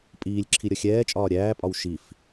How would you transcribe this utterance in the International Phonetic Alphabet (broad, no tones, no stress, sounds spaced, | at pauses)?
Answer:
pʼ iː lʲ ǁʰ i ɾʲ ʌ xʲ ɛː t͡ʃʼ ɒː ɾʲ æː pʼ ɒ w ʃ i f